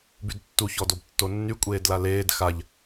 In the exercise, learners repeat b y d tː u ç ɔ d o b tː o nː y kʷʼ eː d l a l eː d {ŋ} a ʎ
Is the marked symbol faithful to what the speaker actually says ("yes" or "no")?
no